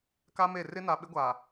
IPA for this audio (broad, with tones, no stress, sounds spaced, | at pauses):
k a˦ m e˦˨ r ɪ˦ n a˨ ɓ ɪ˦ ɡʷ aː˨